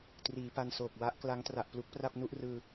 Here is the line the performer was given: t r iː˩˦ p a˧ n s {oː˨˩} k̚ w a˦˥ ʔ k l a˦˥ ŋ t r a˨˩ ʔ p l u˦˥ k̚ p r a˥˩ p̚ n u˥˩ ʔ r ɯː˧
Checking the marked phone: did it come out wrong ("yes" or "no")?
no